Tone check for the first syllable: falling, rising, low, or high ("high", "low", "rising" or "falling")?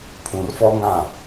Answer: low